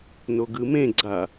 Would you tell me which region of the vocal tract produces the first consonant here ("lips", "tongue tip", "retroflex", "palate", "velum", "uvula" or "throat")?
tongue tip